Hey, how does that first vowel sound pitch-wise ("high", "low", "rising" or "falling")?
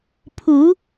rising